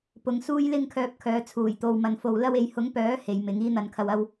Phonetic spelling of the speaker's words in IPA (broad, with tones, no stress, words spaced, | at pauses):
pʊ˨˧ŋsuː˥jlɪ˥ŋkʰœː˧p̚ kʰœː˨˧t͡sʰuː˨˩jt̪o˨w mɐ˨nfo˨wlɐ˥we˨˥j hʊ˨˥ŋpœː˨˥ he˨˧jmɪ˨˥ŋ iː˥n̪ɐ˧nkʰɐ˧wɐ˥w